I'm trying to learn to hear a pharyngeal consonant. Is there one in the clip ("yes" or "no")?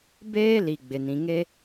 no